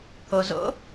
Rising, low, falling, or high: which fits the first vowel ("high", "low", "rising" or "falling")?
low